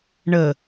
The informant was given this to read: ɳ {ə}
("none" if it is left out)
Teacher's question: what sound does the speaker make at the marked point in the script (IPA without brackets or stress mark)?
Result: ə